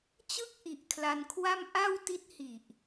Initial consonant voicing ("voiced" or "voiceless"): voiceless